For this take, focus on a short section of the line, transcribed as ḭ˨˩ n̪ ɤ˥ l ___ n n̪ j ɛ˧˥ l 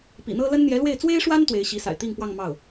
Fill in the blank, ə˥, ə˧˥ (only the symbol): ə˥